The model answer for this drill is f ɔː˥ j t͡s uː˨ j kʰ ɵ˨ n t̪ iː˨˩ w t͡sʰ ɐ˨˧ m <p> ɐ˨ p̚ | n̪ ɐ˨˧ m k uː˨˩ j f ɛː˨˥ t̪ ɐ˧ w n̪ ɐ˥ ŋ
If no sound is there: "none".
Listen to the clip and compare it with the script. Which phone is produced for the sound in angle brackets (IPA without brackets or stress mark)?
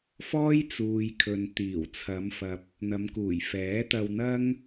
f